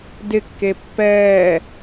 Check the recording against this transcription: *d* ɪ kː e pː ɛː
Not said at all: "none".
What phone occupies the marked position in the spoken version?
d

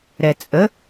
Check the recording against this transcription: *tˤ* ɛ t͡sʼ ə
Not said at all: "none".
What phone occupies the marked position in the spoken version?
ɾ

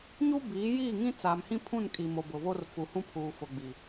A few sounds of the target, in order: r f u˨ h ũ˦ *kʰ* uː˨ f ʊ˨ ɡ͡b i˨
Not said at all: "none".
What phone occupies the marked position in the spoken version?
pʰ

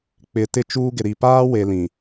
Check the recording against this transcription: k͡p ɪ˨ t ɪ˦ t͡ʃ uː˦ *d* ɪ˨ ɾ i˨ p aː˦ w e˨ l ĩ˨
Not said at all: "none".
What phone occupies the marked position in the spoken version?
ɡ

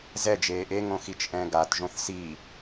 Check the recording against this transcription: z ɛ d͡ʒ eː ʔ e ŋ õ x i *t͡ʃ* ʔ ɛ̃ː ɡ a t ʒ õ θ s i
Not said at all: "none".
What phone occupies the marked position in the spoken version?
t͡ʃ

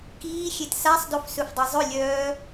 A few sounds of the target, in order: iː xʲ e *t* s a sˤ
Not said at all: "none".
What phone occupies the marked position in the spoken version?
t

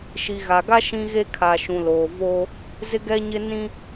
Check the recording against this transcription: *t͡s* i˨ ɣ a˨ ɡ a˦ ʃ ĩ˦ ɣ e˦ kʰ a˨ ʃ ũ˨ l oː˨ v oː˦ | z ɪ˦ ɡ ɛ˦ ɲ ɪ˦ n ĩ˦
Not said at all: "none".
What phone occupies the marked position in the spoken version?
ʃ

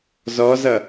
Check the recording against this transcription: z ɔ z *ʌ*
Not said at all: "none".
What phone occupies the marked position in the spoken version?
ʌ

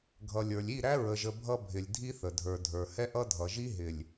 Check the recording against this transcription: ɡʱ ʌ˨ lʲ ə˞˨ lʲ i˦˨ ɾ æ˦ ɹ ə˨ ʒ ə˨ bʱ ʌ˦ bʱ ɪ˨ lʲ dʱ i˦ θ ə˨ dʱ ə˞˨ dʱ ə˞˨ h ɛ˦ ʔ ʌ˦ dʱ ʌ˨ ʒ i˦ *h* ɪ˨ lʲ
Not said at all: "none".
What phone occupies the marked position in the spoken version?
ɦ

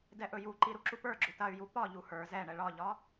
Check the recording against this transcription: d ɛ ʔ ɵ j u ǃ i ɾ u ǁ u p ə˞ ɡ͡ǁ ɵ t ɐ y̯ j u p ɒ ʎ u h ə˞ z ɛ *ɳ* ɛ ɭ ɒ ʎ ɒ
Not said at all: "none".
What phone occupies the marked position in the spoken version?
ɳ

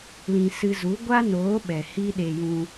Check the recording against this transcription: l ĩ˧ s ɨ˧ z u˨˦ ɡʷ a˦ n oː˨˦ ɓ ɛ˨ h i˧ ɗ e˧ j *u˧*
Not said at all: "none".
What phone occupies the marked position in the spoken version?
ũ˧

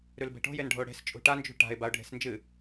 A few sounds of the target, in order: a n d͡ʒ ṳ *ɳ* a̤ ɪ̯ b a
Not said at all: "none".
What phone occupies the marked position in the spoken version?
ʈ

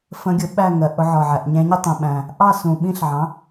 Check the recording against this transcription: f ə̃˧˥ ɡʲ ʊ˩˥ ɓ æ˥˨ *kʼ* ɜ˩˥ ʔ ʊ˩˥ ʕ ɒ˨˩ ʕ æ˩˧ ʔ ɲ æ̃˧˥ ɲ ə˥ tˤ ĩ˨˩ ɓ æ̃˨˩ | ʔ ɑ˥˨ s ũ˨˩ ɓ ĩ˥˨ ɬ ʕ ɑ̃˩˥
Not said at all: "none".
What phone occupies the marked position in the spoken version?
ŋ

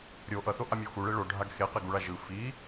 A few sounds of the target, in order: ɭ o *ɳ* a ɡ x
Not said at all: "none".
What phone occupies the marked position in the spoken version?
ɖʱ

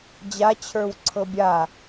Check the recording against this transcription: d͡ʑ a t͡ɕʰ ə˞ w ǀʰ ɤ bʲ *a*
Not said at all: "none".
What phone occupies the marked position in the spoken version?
a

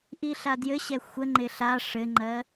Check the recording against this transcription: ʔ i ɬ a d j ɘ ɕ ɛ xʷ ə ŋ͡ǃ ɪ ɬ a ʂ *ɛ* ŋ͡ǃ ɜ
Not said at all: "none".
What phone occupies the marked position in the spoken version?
ɘ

